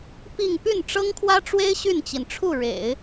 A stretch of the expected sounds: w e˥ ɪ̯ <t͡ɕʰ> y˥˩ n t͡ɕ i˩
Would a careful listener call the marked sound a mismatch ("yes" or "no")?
yes